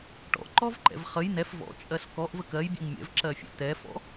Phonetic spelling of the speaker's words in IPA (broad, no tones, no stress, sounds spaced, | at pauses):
ʈ ɔ̰ ǃ ɔ v ǃ ɛ̰ v χ ə j n̪ ɛ f v ɔ̰ t͡ʃʼ ɜ s k ɔ ʔ v ə k ɜ j bʲ ɛ̰ ŋ mʲ ɛ̰ v ǁ ɜ fʲ ə̰ t̪ ɛ f ɔ̰